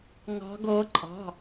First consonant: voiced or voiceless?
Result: voiced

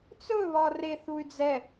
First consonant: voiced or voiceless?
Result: voiceless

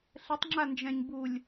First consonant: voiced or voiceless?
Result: voiceless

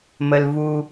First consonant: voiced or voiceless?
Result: voiced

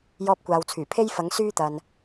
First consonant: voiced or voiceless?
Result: voiced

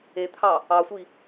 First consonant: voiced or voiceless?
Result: voiceless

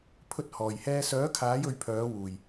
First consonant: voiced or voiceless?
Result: voiceless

